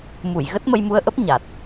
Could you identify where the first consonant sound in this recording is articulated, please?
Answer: labial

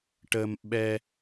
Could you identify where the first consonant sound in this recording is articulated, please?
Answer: retroflex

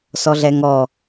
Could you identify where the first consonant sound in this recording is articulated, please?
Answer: alveolar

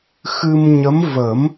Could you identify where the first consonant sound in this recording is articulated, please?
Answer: velar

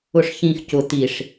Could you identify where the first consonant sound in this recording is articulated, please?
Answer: retroflex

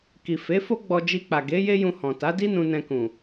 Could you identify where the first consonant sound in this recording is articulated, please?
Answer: velar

